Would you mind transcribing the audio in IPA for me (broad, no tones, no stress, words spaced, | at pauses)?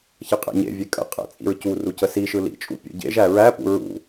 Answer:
çɐqʼæ̰ɲḛvʲe kʼə̰ qʼæ̰t͡sʼḭɹcuru cəsiʃɯ lḭt͡ʃʼṵ pʲṵɟḛʒæ ɹæpṵ ɹṵ